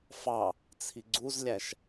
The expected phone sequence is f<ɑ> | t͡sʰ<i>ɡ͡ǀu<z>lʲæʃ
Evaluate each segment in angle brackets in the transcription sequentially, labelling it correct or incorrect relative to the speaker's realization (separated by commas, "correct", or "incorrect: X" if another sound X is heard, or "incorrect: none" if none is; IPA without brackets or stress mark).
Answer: correct, correct, correct